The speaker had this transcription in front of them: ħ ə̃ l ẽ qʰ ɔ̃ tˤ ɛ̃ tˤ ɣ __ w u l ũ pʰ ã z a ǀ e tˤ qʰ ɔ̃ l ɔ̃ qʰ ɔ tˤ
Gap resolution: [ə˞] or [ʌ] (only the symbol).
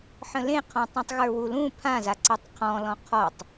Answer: ə˞